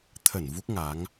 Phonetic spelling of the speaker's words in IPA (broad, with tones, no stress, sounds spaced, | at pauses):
t̪ʰ ə˧˩ n v u˦˥ k̚ ŋ a˨˦ ŋ